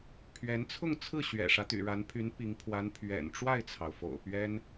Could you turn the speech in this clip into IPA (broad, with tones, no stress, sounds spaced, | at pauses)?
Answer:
pʰ ɥ ɛ˧˥ n t͡sʰ ʊ˥˧ ŋ t͡sʰ ɹ̩˥˩ ɕ ɥ ɛ̰˨˩ ʂ ä˦ t̪ y̰˨˩ ɻ a˧˥ n pʰ y˧˥ n p i˧˥ ŋ pʰ w a˧˥ n pʰ ɥ ɛ̰˨˩ n ʈ͡ʂ w a˥˩ ɪ̯ t͡sʰ ɑ˩ ʊ̯ f o̰˨˩ ʊ̯ p ɥ ɛ˥ n